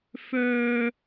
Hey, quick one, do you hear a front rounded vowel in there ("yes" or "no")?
yes